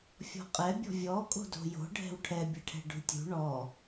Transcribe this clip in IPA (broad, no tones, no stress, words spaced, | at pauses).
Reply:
fʲɔ̤qʼɛ bʲɔ̤vʲɔ kʼo̤do̤jo̤ ɖʱɛ̤wʈʰɛ bʲɛʈʰɛ̤ɖṳtʲṳ ɳɔ